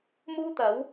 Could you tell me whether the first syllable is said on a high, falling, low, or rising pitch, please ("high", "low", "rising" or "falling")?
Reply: high